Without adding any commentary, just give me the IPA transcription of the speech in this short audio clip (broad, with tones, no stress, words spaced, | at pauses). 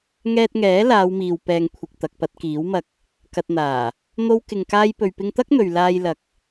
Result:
ŋɛː˧t̚ŋɛː˨˥ laː˨˧wmiː˨w pɛː˨ŋkʷʰɪ˨k̚ t̪ɐ˨k̚pɐ˧t̚kiː˨˥wmɐ˧k̚ | kɐ˨t̚n̪aː˨˩ | n̪o˥wkɪ˧ŋ kaː˥jpɵ˧ɥpɪ˥ŋ t̪ɐ˥k̚n̪ɵ˨ɥ laː˧jlɐ˨k̚